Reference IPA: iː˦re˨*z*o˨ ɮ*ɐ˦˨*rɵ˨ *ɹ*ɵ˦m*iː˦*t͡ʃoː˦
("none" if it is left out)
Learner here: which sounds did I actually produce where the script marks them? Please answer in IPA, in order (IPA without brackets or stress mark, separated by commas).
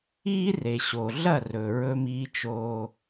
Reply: ɕ, ɐ˦˨, ɹ, iː˦